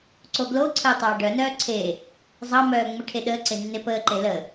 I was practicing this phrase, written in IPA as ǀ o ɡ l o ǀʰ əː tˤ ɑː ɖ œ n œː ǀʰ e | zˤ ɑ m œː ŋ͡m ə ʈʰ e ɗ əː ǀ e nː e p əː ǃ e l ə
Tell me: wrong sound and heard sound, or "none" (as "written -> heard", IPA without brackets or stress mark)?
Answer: none